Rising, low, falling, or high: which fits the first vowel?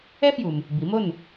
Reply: high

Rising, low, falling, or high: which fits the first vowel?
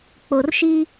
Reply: low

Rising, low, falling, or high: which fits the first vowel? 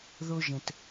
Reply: high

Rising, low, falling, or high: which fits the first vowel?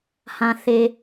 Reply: low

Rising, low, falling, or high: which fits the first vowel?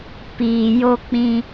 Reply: low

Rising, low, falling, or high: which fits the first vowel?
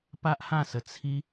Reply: high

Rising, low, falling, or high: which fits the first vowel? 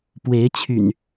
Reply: rising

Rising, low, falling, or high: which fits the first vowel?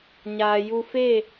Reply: low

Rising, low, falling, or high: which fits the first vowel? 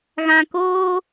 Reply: low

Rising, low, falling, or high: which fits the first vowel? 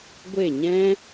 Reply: falling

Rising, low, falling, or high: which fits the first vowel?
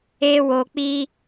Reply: high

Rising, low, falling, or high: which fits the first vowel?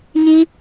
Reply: high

